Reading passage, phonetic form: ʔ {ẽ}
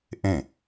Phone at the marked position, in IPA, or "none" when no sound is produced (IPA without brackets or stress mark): ẽ